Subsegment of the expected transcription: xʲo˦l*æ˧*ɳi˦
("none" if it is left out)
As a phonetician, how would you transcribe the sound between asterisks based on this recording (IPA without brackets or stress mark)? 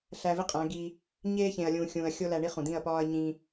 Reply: æ˧